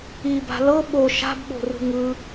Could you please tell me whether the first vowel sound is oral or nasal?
oral